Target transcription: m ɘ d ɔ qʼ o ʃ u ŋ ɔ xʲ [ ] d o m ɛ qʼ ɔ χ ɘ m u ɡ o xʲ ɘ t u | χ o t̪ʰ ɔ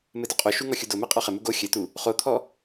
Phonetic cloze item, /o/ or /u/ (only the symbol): u